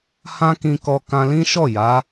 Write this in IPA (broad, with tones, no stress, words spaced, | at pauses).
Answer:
hã˦kĩ˧kɔ˧ kã˧lĩ˦ʃɔ˦˨ ja˨˦